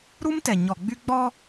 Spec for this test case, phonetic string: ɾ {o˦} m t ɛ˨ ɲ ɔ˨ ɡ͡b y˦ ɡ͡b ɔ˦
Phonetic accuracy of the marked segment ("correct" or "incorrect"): incorrect